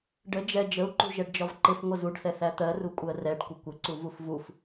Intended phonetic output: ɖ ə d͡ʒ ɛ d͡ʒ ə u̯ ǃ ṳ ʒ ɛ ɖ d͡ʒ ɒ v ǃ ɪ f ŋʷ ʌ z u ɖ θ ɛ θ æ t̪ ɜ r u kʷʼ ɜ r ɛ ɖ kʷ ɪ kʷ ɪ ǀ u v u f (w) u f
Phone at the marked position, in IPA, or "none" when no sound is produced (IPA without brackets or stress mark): v